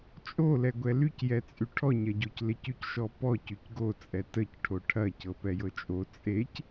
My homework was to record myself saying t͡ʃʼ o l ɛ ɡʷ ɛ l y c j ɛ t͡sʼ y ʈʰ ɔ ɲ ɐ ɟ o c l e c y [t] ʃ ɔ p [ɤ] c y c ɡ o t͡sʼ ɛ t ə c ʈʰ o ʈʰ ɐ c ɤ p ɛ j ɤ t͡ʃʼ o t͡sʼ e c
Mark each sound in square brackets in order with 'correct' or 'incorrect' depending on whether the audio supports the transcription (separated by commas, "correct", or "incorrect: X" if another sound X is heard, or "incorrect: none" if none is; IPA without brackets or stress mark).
incorrect: c, incorrect: ɔ